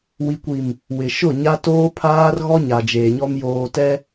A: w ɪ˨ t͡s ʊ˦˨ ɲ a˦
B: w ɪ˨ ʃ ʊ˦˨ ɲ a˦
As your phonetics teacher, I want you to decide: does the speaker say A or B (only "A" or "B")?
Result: B